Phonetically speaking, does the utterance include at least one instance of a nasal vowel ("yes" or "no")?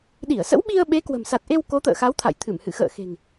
no